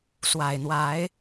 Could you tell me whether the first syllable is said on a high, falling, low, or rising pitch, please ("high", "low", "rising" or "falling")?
low